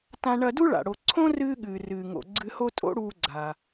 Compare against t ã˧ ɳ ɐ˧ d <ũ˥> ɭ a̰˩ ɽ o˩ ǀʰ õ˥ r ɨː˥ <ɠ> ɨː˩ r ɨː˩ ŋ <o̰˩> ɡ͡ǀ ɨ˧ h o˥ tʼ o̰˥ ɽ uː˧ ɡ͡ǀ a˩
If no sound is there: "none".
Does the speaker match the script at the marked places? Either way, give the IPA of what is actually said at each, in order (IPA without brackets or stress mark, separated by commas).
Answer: u˥, ɠ, o̰˩